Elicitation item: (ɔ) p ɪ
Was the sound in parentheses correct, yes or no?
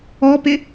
yes